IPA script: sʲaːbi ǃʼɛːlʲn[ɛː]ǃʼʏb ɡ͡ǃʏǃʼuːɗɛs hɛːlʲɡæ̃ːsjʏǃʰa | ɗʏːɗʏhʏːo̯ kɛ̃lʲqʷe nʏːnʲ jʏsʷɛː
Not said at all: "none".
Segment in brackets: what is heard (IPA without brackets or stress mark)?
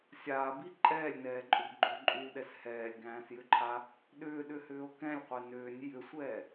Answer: ɛː